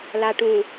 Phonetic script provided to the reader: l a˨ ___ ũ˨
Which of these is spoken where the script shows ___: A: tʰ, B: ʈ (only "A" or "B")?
B